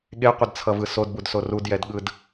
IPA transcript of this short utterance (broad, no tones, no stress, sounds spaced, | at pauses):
ɠ e qʷ ʌ d t͡sʰ ʌ v ɯ s o d b u d s o r u d j ɛ d ɠ ɯ d